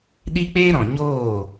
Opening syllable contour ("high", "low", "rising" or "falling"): high